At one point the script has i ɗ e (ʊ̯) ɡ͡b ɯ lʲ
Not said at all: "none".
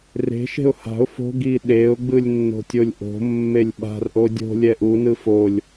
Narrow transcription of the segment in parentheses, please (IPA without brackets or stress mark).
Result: ʊ̯